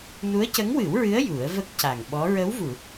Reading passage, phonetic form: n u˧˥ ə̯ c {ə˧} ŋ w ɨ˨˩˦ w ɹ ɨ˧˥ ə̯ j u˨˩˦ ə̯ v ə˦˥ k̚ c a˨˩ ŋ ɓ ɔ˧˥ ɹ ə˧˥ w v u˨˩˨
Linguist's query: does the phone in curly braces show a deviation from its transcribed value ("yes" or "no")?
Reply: yes